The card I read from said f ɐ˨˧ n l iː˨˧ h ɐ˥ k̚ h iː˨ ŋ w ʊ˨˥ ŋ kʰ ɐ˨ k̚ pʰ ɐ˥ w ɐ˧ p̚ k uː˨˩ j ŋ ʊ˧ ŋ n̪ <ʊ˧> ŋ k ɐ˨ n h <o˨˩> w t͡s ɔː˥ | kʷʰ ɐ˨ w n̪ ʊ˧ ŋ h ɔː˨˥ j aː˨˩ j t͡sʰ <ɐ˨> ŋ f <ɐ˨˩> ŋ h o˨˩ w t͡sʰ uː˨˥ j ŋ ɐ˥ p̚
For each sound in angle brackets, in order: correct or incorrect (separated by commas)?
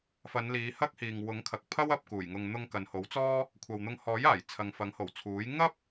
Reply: correct, incorrect, correct, incorrect